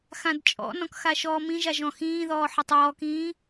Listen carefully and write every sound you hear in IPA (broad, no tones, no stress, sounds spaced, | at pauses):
x ã d t͡ʃʼ ɔ̰ n ɔ̃ k x a ʃ ɔː m ĩ ʒ a ʒ ɔ̃ x ĩː ð ɔː ħ ɔ tˤ ɔː k ĩː